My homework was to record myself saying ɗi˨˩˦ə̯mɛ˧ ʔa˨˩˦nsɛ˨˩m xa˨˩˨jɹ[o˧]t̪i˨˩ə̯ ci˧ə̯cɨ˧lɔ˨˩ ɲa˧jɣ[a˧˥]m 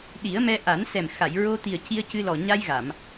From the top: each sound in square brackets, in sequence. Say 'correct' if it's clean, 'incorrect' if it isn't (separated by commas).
correct, incorrect